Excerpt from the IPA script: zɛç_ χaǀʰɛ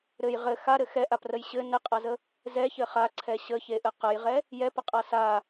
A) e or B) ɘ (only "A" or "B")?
B